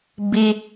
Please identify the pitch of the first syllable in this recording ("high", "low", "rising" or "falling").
high